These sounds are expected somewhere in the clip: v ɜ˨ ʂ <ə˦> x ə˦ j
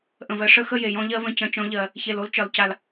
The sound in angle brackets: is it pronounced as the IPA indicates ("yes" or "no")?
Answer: yes